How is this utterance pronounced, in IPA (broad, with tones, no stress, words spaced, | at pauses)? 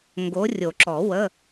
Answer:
ŋɡo˨˦rʲo˨˩˦ǁɔ˨˩˦ wə˧˥˧